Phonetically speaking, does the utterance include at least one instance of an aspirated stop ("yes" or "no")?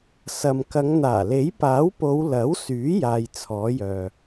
yes